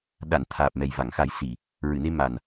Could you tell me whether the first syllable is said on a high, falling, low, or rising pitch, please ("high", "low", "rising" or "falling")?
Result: low